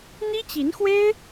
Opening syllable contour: high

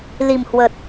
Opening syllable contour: low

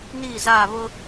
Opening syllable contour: falling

